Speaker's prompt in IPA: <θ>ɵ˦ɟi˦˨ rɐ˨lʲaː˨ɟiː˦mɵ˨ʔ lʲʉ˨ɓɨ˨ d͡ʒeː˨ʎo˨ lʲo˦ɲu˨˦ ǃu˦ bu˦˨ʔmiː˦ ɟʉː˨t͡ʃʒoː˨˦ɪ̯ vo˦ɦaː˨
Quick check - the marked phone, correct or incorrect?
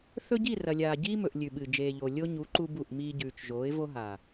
correct